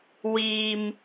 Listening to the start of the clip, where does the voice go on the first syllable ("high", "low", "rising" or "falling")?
low